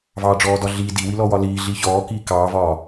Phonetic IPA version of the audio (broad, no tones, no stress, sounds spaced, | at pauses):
v ɑː ɖ͡ʐ ɔː d ɒ ɮ iː d i w i l ɔ w ɒ l iː ɮ iː ç ɔː k iː k ɑː v ɒː